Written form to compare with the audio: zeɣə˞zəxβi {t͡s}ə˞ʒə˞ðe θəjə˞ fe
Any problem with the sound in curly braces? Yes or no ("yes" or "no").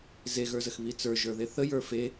no